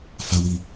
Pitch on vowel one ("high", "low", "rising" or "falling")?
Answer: low